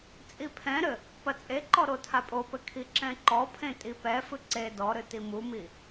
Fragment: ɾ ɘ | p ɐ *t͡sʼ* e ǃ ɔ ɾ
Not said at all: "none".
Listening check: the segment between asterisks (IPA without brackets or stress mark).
t͡sʼ